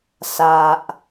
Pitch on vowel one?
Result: low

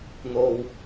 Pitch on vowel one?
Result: low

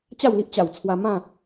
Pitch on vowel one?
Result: falling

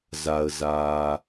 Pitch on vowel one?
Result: low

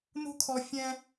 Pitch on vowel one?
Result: high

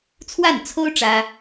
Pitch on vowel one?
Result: falling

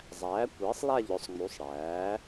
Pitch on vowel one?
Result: rising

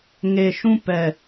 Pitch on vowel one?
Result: low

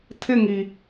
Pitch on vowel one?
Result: falling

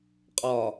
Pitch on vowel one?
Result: low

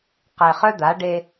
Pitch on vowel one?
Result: low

